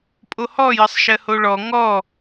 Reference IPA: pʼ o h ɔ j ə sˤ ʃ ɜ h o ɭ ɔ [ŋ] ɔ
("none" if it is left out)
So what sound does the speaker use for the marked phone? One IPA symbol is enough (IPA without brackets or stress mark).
ŋ